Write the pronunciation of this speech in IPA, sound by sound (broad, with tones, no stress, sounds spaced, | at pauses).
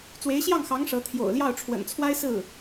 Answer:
t͡s w e˧˥ ɪ̯ ɕ j ɑ˥˩ ŋ x ɑ˧˥ ŋ ʂ ɤ˧˥ t̪ʰ j o̰˨˩ ʊ̯ l j ɑ˥˩ ʊ̯ ʈ͡ʂʰ w ə̰˨˩ n t͡sʰ w a˥ ɪ̯ s ɹ̩˥˩